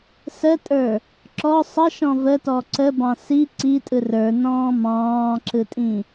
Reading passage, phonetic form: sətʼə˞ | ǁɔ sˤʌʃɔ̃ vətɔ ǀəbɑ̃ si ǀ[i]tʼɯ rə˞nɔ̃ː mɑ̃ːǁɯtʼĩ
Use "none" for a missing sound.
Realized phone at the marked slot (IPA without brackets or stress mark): i